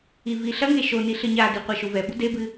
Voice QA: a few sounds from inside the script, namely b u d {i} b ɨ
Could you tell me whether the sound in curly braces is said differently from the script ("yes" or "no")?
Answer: yes